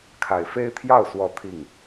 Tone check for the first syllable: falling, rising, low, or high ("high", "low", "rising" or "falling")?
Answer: low